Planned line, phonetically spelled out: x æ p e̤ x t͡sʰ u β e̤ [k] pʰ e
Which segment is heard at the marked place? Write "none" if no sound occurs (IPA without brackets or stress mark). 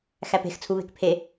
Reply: k